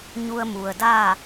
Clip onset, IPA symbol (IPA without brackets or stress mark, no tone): ɲ